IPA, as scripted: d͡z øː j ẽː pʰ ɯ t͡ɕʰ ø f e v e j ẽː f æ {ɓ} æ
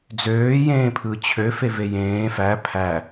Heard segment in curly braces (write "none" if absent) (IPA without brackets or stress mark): pʰ